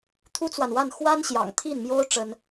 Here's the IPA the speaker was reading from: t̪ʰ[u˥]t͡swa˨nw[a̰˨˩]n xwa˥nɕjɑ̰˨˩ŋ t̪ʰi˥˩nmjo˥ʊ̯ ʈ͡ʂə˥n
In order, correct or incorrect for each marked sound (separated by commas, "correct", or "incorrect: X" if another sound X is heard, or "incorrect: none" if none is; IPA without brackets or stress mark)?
correct, incorrect: a˥˩